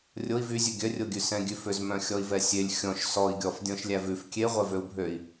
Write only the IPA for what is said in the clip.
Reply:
rʲ o i̯ v y zʲ ʉ ɡʲ œ rʲ o ɡʲ ʉ s ɛ̃ ɡʲ ʉ f ø z m œ̃ xʲ ɔ i̯ v ɛ sʲ e lʲ xʲ ɔ̃ ʃ s ɔ i̯ ɡʲ ɔ f dʲ ɔ̃ ʃ lʲ æ v ʉ f kʲ e ʁʷ ɛ v ø u̯ bʱ ø i̯

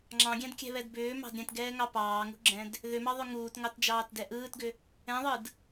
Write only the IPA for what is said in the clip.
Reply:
ŋ͡ǁ ɑ̃ ɡʲ ɛ̃ d kʲ ɛ̤ β ɛ d b ʏː m ɑ̤ d ɾʲ ɛ̃ t ɡ ɛː ŋ ɑ p ɑː ŋ ṳ ɡ͡ǁ ɛ̃ d | ð ʏ m ɑ ðˤ ʏ ŋ uː t ŋ ɑ t d͡ʒ ɑː t d ɛ ʔ ɯː t ɡ ʏ | ɛ̃ ðˤ ɯ d

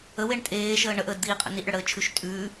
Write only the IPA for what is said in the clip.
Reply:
ə w e ɳ tʼ eː ʃ əː ɳ ə ʔ əː d d̪ iː qʼ ə̰ n i ʔ ɽ ə ɽ əː t͡ʃʰ ʉ ʃ tʼ ʉː

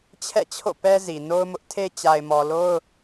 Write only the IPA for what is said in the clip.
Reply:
t͡ɕʰ ɛ̰˦˨ t͡ɕʰ o̰˦˨ p ɛ˦ z i˨ n o˦ ʊ̯ m ʊ˦ ʔ tʰ e˦ t͡ɕ a˨ ɪ̯ m ɔ˨ l o˦ ʊ̯

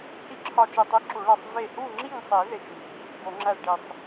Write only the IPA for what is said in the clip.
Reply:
h i˥˨ ǁʰ ɒ˧˩ t͡ʃ i˧˩ tˤ i˦ ǁ u˨˩˦ ɭ æ˧˩ sˤ v e˧˩ h u˥˨ ŋ͡ǁ i˥˨ ŋ sˤ i˨˩˦ ð e˧˩ t͡ʃ m i˨˩˦ | b o˨˩˦ ŋ͡ǁ æ˥˨ z ɖ i˧˩ sˤ

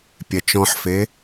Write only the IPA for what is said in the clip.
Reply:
pʲ ɛ t͡ʃ ɔ̃ ħ f e

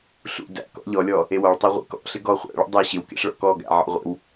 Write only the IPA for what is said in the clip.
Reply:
ɬ ṵ d æ̰ k ɔ̰ ʎ ɔ lʲ ɔ | e w ɔ ɭ tˤ æ ʁʷ ḛ k ɔ̰ ɬ ɪ ɡ ɔ χʷ æ̰ ɭ ṵ dˤ e ɕ ɪ w k ḛ ɬ ɭ ɔ̰ k ɔ ɡ æ̰ ʕ ɔ̰ ʁʷ ḛ w

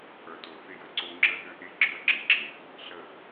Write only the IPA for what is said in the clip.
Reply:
ʔ ə˞˨ t o˨ θ ɪ˦˨ j ə˦ ǀ o˦ ŋ͡ǁ ə˦ ð ø˦ ʔ e˦ ɡ͡ǁ ə˞˦ ǁ ɪ˨ ǁ ɪ˦ | ɬ ə˦˨

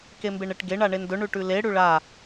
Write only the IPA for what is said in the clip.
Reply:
k e m b e ɳ e ʈ ɡ e ɳ a ɳ e n d ɵ ɳ ʉ ʈ ʉ l e ɽ ʉ ɭ a

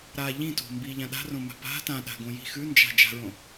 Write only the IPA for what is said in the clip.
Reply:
ɾ a ʎ ĩ t o̤ m b i ʎ ã ɗ a̤ r õ m a̤ p a̤ t ã ɗ a̤ ɡ õ j i̤ x ʉ n d͡ʒ a̤ d͡ʒ a̤ ɹ õ

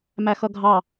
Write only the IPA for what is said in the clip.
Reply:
m æ x ʌ ɡʱ ɑ

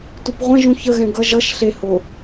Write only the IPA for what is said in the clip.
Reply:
t u p ʁʷ ɛ̃ ʒ ũ ç ə ɣ ɛ̃ ɡ ʌ ʒ ʌ ʃ ɬ e h o

